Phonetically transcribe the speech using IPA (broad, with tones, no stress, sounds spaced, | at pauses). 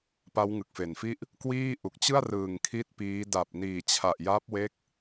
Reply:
p a˦˥ w ŋ ɯ˨˩ k̚ f e˨˩ n f i˥˩ ʔ | k w iː˥˩ ʔ u˨˩ k̚ t͡ɕ ɯ˥˩ a̯ r ɯː˨˩ ŋ kʰ i˥˩ t̚ p iː˦˥ d a˨˩ p̚ n iː˨˩ t͡ɕʰ a˨˩ ʔ j a˦˥ p̚ w e˦˥ k̚